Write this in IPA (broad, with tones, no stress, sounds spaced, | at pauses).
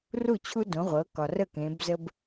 r u˥˩ t͡ɕʰ u˦ d õ˩˧ ʁʷ ɤ˩˧ k ɒ˩ r ə˥˩ k ẽ˩˧ b z ə˦ b